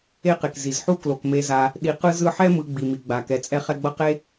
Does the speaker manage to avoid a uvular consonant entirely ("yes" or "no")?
no